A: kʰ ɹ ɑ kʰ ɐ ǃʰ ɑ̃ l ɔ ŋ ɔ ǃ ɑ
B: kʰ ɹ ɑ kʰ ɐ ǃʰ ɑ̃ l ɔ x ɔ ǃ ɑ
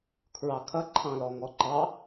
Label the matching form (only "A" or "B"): A